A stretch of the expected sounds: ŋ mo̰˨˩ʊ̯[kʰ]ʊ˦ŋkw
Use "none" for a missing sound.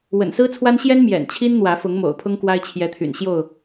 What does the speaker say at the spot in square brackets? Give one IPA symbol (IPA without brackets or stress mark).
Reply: pʰ